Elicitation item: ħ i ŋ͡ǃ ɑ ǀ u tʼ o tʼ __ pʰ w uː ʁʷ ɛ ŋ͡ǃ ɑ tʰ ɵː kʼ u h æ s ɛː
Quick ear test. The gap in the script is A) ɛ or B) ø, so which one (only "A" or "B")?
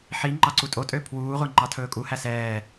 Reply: B